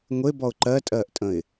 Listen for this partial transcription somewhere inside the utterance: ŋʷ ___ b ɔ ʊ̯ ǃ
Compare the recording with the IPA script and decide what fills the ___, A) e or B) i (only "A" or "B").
A